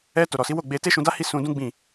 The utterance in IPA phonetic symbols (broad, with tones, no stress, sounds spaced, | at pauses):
ɛ˧ t o˨ ɾ ɔ˨ s i˨˦ w o˦˨ ɡ͡b e˧ t e˦ ʃ ũ˧ d a˦ h i˦˨ s ũ˧ d ũ˦ ɡ͡b ĩ˦˨